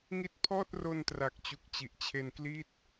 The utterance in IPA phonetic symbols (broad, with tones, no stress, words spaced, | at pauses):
ŋi˦˥t̚pʰɔː˥˩t̚ ro˧ntra˨˩k̚t͡ɕu˨˩k̚ t͡ɕi˨˩ʔt͡ɕʰe˧n kli˥˩t̚